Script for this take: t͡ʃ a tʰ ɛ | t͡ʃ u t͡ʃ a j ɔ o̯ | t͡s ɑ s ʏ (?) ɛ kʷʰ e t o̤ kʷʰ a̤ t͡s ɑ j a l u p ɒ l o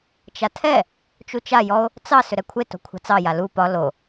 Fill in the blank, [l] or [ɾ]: ɾ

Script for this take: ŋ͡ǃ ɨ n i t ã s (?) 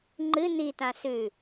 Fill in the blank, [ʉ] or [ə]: ʉ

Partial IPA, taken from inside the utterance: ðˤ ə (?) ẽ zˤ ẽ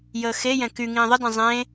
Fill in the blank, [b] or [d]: d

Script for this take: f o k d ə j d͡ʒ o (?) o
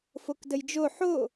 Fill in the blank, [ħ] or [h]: ħ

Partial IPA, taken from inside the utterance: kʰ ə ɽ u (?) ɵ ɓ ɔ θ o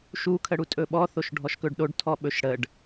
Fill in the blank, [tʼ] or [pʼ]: tʼ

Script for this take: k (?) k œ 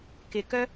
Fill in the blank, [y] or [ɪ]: ɪ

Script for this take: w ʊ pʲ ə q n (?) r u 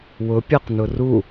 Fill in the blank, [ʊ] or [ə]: ʊ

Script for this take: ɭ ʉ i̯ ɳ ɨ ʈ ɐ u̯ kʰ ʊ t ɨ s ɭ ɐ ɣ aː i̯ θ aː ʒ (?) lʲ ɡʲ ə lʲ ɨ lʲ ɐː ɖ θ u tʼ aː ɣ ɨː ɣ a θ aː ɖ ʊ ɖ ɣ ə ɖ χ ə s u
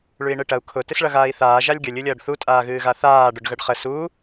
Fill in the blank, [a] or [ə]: a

